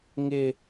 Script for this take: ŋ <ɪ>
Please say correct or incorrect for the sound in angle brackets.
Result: correct